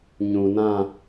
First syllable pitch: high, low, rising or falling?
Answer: low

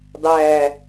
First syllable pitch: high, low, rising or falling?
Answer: falling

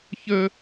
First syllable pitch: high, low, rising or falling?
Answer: high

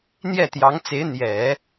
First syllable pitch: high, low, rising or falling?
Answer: falling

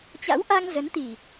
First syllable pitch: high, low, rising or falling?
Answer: rising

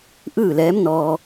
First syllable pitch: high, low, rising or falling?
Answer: falling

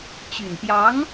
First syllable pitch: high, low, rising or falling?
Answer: low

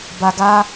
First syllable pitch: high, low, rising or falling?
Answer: low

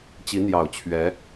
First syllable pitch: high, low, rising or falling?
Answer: rising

